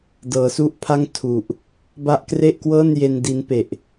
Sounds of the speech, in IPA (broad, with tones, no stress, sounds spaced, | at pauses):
d ɤː˩˦ s u˥˩ ʔ pʰ a˥˩ ŋ tʰ u˨˩ ʔ | b a˦˥ ʔ k r e˥˩ ʔ k w ɤː˥˩ n j e˧ n d i˦˥ n p e˨˩ ʔ